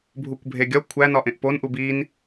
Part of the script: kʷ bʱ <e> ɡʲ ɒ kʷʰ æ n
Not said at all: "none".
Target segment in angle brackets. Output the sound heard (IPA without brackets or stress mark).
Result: e